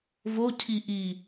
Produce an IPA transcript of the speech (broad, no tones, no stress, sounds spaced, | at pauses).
v o cʰ i ʔ i